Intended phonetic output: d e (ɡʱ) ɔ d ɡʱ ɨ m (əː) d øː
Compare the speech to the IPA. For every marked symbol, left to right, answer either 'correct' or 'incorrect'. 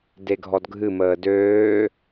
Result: correct, correct

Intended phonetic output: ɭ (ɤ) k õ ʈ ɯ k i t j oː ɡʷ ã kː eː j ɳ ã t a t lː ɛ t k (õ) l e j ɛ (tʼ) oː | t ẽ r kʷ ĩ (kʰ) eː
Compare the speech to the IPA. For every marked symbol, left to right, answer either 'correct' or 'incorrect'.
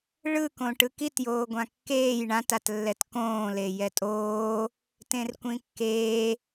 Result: incorrect: ɯ, incorrect: õː, correct, incorrect: kː

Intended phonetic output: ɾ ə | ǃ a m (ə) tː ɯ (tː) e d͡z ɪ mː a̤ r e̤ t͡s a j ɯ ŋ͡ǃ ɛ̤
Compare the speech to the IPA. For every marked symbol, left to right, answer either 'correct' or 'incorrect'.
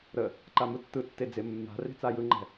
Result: incorrect: ɯ, correct

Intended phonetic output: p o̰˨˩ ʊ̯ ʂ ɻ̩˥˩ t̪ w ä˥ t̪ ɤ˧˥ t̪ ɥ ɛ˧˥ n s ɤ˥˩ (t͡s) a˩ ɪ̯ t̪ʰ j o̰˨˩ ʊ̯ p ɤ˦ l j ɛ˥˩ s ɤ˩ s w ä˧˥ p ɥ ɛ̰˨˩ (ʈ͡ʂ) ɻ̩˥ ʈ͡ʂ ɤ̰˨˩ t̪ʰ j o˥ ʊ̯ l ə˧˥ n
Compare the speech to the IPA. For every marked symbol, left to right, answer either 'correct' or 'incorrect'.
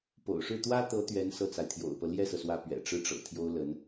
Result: correct, correct

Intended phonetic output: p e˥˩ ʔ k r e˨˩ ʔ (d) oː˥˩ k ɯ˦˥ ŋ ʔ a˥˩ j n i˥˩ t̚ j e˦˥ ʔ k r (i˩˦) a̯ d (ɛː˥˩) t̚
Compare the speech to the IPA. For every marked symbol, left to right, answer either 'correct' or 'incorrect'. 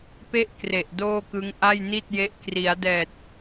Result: correct, correct, incorrect: ɛː˨˩

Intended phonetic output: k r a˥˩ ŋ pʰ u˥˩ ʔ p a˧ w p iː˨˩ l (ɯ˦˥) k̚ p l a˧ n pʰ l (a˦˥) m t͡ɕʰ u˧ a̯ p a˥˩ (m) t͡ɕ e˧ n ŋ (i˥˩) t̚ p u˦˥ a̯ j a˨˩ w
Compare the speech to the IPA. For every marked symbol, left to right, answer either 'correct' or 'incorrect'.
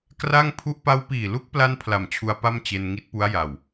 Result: incorrect: u˦˥, incorrect: a˨˩, correct, incorrect: i˦˥

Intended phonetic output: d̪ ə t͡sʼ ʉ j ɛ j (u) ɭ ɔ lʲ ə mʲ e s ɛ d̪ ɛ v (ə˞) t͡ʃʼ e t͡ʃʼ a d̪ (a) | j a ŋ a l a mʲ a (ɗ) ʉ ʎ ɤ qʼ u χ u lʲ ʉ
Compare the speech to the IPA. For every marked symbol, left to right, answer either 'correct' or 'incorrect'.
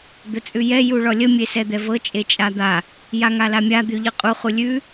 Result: correct, incorrect: ɤ, correct, incorrect: d̪

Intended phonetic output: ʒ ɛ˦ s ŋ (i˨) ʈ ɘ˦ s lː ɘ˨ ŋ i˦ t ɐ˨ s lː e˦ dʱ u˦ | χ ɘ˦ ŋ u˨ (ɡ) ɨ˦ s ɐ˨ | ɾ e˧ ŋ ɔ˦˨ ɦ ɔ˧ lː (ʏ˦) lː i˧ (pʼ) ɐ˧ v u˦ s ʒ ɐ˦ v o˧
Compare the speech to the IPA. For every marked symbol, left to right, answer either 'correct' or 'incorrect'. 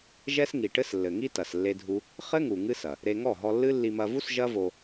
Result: correct, incorrect: ŋ, incorrect: ɨ˦, incorrect: m

